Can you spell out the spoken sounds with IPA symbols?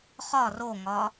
χ ɒ r o ŋ ɒ

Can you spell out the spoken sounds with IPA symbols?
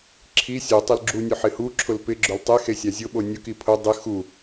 ǁʰ i sʲ u tˤ ɪ l ɡ͡ǁ u nʲ ʊ ħ ɪ h u ǁʰ ʊ l p ɪ ɡ͡ǁ ʊ l tˤ e x e sʲ a zʲ ʊ ɓ o nʲ ʊ k i pʰ ʊ dˤ ɪ x u

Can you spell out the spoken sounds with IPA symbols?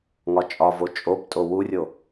ŋ ɒ t͡ʃʼ ɒ v o t͡ʃʼ o p tʼ o w u rʲ o

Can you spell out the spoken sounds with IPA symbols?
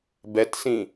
b ɛ t s ĩ

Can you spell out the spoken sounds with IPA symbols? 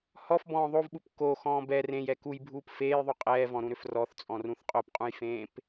h ɔ f b ɔ̃ː ðˤ o v ɓ u p k o x ɔ̃ː b ɛ r ẽ j ɛ k u j bʱ uː p f eː j ðˤ u qʼ ɛː v ɔ̃ ɾ ũ ɾ ʏ f r ɔ θ t͡sʼ ɔ̃ r ũ θ qʼ o p qʼ ũ j f ẽː p

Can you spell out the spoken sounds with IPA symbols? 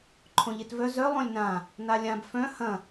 ǃʰ õ ʎ e t v œ z œ lˠ õ lʲ n ã | n a lʲ ã b f œ̃ h ɐ̃

